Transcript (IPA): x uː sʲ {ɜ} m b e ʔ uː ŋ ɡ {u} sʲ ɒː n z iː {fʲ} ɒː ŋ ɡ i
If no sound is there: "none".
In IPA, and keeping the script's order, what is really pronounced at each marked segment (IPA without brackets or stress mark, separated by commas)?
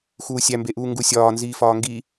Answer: æ, u, f